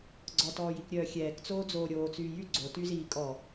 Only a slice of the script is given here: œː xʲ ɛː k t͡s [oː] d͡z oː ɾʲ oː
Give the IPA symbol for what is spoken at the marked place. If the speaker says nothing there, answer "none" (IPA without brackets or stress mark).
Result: oː